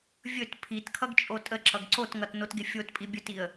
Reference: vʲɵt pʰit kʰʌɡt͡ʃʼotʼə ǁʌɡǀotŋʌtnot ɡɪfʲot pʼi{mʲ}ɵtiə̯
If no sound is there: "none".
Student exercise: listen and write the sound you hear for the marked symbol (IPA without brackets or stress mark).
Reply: bʲ